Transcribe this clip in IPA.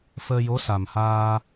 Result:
f əː˧ j o˧˥ s a˨˩ m h aː˧

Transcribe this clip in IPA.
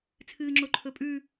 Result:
t͡sʰ ɨː ŋ͡ǁ o ǃʰ ɵ pʼ ʉ

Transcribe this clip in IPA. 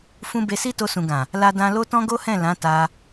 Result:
f ũ˦ b e˧ s i˦ t o˧ s ũ˨ ɡ ã˨ | l a˦ d ã˦ l o˦ t ɔ̃˦ ɡ o˦ h ɛ̃˦˨ l ã˨˦ t a˧

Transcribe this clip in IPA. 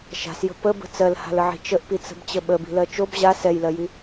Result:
ʃ a̤ s j ə̤ p ə b ə̤ t͡s ɜ l h a̤ l ə ʕ i̤ t͡ʃ ə ʔ p i t͡s ə̤ b t͡ɕ ə ɓ ə b i̤ l ɜ t͡ʃ o b ʑ a s ɛ j l ɜ j i

